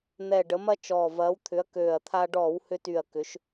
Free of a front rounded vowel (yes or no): no